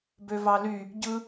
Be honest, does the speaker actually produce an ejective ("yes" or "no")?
no